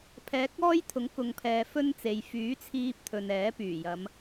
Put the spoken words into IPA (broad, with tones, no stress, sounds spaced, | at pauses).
pʰ ɛː˨˥ k̚ ɔː˥ j t̪ʰ ʊ˨˥ ŋ k ʊ˨ ŋ pʰ ɛː˨ f ɵ˥ n t͡s e˨ j f yː˨˥ t͡sʰ iː˧ p̚ t̪ʰ ɵ˨ n ɛː˨˥ p yː˨˩ j ɐ˨˧ m